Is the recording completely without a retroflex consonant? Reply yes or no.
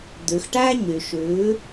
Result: no